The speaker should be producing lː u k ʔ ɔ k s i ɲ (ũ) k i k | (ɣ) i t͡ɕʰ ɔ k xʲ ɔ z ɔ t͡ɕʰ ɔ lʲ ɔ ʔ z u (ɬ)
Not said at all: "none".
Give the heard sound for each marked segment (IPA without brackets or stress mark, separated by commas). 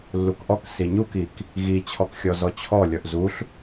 u, ɣ, ɬ